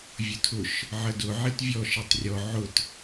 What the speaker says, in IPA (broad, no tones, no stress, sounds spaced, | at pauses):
vʲ ʊ tʰ ʊ ʃ | ʕ ə d ʊ ʕ i t vʲ ɔ ʃ i tˤ rʲ ɔ ʕ ʊ t